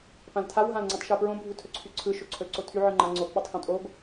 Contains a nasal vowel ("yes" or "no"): yes